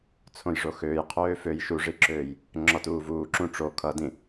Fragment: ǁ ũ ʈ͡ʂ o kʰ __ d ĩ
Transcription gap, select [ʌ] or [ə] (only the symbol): ʌ